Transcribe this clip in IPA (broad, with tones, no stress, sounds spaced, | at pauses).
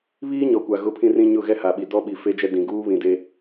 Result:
β iː˦ ɲ ɔ˨ kʷ a˨ ɣ ʊ˦˨ pʰ ĩ˦ r ĩ˦ ɲ ʊ˦˨ ɣ ɛ˦ h a˨ ɓ i˨ d ɔ˦ ɓ i˨ f e˦ d͡ʒ ɛ˦ d ĩ˨ ɡ uː˦ β ĩ˨ d e˦